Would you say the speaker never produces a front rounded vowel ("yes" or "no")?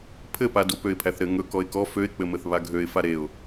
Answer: no